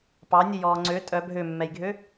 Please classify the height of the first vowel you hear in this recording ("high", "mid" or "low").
low